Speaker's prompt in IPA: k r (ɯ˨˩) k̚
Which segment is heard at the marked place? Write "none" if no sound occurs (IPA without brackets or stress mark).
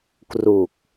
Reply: u˨˩